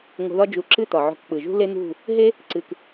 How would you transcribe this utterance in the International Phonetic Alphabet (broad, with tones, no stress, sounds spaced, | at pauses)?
ŋ o̤˧ ð ɒ˦ d͡ʒ u˨˦ ǁ ɨ˦˨ t̪ ɒ˨ ʕ o̤˧ k k͡p ɯ˨ ʒ ṳ˦ l e˦ n̪ ṳ˦˨ | ɦ e˦ | ǀ ɨ˨ k